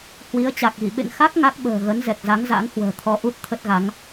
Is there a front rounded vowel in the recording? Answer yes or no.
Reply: no